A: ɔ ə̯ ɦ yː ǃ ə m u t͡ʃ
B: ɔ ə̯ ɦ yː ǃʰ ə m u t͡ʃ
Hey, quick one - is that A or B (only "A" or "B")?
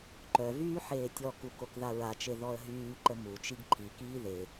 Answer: A